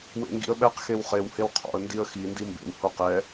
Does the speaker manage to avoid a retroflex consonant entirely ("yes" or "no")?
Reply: yes